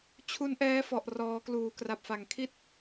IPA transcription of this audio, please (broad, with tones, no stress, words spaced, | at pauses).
t͡ɕʰu˦˥nʔɛː˦˥fɔ˨˩ʔ rɔː˩˦kluː˩˦kra˨˩p̚fa˩˦ŋ kʰi˥˩t̚